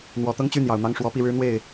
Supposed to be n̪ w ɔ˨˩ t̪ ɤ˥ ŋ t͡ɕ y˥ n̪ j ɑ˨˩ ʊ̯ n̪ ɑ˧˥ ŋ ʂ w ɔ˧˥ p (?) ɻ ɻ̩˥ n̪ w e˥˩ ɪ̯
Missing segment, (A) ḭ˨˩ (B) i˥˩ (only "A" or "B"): B